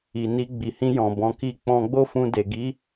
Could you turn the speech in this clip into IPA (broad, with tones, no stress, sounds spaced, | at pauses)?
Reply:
i˨ n i˧ ɡ͡b i˨ h ĩ˧ j ɔ̃˨ b ɔ̃˧ k i˦ k͡p ɔ̃˦ ɡ͡b o˦ f ũ˧ d e˨ ɡ i˨˦